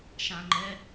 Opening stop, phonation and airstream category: click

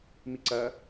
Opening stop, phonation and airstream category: click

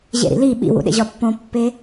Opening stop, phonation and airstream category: implosive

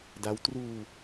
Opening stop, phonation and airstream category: plain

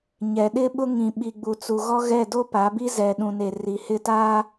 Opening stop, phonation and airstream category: implosive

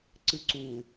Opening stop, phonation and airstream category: click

